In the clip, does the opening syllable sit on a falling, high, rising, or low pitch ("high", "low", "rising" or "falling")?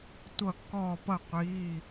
falling